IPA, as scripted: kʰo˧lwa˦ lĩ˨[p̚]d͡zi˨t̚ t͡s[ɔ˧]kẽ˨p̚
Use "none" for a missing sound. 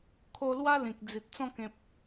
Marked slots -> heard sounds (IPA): k̚, ɔ̃˧

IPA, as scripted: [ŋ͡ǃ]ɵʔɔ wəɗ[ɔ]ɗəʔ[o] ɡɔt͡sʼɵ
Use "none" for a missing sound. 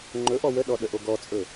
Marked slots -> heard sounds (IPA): ŋ͡ǃ, ɔ, o

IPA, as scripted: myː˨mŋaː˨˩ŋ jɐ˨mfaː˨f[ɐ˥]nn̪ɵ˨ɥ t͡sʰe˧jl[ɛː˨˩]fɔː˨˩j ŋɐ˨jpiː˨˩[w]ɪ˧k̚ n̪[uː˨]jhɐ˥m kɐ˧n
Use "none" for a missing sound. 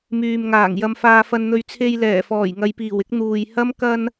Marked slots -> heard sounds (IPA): ɐ˨, ɛː˨˩, w, uː˨

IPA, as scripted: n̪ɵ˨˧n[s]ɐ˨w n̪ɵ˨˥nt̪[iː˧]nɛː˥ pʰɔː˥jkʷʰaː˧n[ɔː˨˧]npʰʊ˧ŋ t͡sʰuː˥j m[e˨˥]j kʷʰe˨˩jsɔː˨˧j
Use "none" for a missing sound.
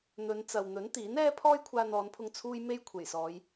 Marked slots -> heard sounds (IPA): t͡s, iː˨˥, ɔː˨˧, e˥

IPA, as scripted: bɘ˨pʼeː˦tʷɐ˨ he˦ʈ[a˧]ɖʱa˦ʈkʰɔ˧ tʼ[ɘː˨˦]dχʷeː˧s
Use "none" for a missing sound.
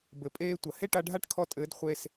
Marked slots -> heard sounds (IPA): a˧, ɘː˨˦

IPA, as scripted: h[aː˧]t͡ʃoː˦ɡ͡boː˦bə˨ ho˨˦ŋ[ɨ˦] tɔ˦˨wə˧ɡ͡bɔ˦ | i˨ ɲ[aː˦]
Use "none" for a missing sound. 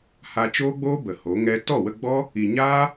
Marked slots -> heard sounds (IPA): a˧, ɛ˦, aː˦

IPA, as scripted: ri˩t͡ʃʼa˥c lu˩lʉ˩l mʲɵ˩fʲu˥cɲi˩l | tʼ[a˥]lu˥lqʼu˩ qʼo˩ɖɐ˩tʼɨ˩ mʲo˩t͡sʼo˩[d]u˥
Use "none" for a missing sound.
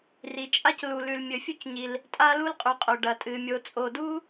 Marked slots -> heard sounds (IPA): a˥, d

